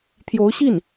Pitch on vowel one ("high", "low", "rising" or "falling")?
rising